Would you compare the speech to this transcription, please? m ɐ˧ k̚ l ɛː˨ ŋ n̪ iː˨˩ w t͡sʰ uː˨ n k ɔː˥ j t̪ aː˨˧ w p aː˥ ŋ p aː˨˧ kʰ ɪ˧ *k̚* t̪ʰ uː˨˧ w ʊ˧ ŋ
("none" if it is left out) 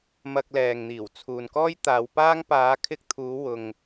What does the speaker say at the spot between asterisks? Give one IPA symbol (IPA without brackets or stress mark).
k̚